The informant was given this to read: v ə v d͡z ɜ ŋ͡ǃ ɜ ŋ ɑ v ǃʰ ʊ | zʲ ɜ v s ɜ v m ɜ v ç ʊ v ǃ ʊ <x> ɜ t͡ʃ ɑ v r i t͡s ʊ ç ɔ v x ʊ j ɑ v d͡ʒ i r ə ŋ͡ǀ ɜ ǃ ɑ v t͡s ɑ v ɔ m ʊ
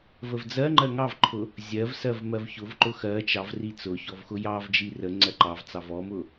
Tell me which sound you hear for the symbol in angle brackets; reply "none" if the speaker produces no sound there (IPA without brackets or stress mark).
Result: x